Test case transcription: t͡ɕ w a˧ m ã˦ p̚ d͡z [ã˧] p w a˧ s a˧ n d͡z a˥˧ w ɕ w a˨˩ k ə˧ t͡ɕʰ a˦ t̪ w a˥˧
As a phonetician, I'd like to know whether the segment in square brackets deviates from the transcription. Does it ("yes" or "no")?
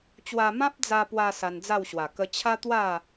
yes